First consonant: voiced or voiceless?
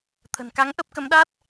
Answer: voiceless